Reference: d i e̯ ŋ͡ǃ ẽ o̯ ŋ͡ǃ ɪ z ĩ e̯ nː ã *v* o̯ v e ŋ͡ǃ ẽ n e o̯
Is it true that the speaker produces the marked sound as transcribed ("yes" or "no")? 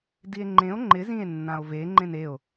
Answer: no